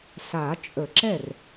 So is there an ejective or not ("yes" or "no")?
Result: yes